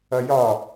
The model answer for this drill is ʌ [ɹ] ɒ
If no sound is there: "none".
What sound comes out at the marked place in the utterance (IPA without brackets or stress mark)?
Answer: j